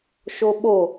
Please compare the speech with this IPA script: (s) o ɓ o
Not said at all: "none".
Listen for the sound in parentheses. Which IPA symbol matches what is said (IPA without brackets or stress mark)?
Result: ʃ